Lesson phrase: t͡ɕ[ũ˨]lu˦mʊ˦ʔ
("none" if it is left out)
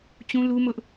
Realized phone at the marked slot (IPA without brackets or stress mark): ũ˦